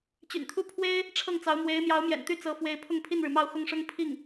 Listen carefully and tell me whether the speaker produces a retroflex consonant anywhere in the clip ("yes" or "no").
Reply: yes